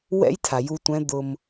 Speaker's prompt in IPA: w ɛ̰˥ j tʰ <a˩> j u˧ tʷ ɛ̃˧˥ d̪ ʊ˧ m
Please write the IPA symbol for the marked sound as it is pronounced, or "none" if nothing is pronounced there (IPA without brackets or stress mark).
a˩